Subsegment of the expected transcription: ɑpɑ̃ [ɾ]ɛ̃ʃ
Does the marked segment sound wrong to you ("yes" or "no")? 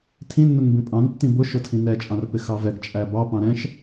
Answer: no